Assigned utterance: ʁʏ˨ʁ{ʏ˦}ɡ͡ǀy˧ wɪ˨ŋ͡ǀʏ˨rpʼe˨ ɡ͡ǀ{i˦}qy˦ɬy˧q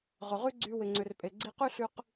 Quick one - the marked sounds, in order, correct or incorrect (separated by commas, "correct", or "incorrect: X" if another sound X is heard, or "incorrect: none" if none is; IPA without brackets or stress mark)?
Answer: incorrect: y˦, incorrect: i˧